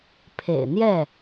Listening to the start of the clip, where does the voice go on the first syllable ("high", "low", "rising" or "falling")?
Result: low